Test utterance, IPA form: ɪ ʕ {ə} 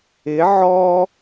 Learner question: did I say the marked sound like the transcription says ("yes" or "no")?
no